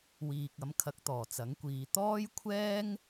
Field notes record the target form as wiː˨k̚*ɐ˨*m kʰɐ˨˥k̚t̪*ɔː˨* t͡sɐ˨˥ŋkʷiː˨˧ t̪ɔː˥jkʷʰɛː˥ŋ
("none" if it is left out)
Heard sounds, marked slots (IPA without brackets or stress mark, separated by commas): ɐ˨˥, ɔː˨˩